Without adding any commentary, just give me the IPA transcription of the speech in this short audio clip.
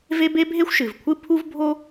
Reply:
v e˥ b e˥ bʱ e˥ xʷ ʃ ɨ˩ v kʷʰ ɨ˥ pʰ u˥ v bʱ o˥

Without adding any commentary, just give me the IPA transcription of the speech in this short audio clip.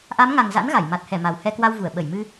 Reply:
ʔ a˨˦ m ŋ a˨˩ ŋ z a̰˧˥ n ɣ a˧˩ j m a˨˩ t̚ h ɛ˧˩ m a˨˩ w h ɛ˧ k w a˧ w v u˧˩ ə̯ ɓ ə˧˩ j m ɨ˧

